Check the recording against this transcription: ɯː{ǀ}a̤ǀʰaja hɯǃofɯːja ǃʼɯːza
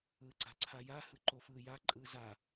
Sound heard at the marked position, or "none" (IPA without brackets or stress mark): ǀ